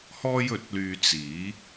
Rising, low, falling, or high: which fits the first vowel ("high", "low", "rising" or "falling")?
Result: high